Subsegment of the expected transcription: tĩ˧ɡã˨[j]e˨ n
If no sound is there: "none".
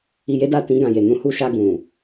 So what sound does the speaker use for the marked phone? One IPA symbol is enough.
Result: j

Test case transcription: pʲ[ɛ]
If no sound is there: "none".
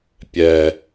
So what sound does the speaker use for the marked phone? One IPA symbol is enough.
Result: ɛ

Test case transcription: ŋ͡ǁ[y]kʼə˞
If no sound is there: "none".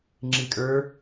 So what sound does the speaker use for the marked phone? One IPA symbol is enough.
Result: i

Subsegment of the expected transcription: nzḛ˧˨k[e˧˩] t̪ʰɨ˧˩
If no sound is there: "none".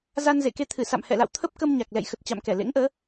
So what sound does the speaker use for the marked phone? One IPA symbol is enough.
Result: e˧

